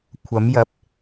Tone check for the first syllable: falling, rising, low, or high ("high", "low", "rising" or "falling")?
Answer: rising